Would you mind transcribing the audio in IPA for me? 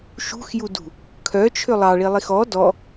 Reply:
ʃṳxjudṳ | kʰœt͡ʃʰʏ lˠɑɭilˠix ɔ dɔ

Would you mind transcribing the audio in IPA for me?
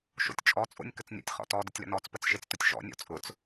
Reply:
ʃo̰tʲt͡ʃʼɔt͡sʼo̰nʲ kət͡snʲɔ̰tʲχɔ̰ tɔ dʊtʲlə̰nɔt͡spət͡s ʃet͡stʊtʲʃɔ̰nʲɔ̰ t͡sʼʊt͡s

